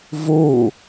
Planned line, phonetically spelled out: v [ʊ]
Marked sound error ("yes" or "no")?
yes